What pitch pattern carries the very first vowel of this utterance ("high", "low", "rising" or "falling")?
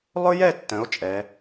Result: high